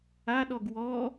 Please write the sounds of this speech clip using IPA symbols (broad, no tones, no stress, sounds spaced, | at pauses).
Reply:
a ɗ ɔ ɡ w ɔ